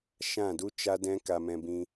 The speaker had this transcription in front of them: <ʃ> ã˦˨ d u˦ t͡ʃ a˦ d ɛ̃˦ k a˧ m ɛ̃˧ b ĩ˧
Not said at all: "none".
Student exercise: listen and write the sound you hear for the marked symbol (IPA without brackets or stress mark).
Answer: ʃ